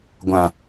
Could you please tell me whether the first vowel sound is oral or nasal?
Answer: nasal